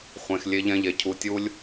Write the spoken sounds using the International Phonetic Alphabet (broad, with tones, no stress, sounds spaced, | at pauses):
χʷ ẽ˨ x lʲ e˧ ʎ ɛ̃˧ ʎ e˨ cʰ u˨ tʲ u˧ lʲ